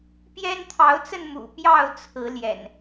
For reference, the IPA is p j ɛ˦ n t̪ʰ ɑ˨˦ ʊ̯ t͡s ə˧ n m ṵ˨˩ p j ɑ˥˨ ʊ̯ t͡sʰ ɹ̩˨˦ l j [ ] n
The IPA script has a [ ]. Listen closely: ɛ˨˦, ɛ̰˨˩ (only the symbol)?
ɛ̰˨˩